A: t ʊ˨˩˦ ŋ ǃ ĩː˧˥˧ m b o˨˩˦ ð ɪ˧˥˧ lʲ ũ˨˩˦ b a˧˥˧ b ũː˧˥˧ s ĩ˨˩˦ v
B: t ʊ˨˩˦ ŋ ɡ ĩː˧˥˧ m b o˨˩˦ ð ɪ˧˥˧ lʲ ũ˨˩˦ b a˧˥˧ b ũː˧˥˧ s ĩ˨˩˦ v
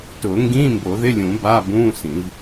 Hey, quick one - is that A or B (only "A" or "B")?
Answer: B